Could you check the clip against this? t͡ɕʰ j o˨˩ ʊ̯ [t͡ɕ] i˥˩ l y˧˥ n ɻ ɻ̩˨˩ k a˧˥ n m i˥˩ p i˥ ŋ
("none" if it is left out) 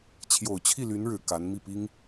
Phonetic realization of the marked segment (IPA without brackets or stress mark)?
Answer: t͡ɕʰ